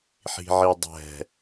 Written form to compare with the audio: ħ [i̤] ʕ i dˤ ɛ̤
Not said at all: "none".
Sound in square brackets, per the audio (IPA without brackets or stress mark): i̤